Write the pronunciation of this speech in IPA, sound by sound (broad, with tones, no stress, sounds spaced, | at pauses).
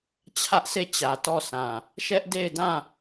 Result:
t͡ɕʰ ä˦ ʔ s e˦˨ t͡ɕ ä˨ t ɔ˦˨ s ã˨ | ʃ ɛ˦ ʔ d e˦˨ ɪ̯ d ã˦˨